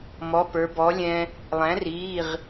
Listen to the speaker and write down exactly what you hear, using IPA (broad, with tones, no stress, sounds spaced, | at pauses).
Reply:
m ɔ˩˧˩ p ə˞˩˧ b ɔ˩˥ lʲ ɛ̃˧ | lˠ æ̃˩˥ r iː˩˧˩ ʁ